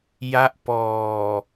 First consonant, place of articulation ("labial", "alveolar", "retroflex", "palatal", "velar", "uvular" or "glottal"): palatal